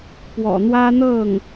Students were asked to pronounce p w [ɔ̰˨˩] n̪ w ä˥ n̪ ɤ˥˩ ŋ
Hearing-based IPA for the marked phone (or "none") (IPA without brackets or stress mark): ɔ̰˨˩